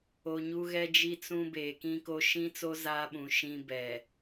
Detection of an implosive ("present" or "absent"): present